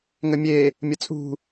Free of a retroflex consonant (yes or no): yes